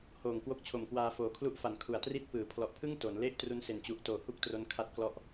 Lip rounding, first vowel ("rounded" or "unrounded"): rounded